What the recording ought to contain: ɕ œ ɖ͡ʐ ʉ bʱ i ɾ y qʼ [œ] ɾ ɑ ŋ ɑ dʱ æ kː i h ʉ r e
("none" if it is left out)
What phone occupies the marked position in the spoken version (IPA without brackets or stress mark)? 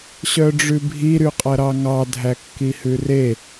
æ